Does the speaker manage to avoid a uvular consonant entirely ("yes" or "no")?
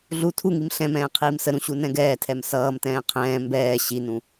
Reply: no